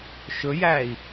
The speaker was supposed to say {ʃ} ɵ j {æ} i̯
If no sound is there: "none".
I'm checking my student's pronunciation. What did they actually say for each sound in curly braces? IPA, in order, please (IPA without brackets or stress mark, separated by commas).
ʃ, æ